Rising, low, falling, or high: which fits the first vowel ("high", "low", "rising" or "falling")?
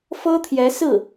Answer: high